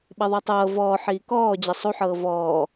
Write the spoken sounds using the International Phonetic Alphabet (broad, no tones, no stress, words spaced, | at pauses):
ɓɛðˤɤtˤɤː vɔːħiː kɔː d͡ʑɛsˤuħɤː vɔː